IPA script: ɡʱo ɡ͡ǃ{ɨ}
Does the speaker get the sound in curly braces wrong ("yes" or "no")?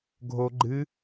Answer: no